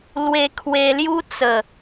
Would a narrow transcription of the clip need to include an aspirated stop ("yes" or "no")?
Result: yes